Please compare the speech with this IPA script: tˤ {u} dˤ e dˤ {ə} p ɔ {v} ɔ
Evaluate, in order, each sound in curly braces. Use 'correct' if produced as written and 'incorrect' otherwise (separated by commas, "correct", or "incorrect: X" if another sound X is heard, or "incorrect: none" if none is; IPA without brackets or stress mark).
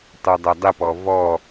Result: correct, correct, correct